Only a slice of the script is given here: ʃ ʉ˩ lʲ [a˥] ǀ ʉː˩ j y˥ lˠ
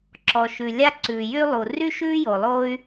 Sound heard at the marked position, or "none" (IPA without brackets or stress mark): a˥